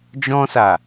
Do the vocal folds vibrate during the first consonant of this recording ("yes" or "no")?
yes